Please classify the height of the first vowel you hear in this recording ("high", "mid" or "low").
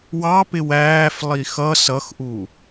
low